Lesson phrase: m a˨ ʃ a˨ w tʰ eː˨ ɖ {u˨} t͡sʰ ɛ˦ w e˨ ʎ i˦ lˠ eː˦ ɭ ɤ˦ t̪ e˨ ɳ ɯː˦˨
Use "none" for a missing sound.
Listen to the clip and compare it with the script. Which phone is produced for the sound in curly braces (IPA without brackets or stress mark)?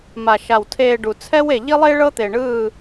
u˨